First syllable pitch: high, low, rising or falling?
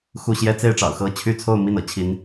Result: falling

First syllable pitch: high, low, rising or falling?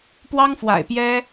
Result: high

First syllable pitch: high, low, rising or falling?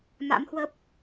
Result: rising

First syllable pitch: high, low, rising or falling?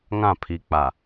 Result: falling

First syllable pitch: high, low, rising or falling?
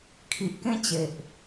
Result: low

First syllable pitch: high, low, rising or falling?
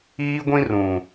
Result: high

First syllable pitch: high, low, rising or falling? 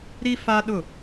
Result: high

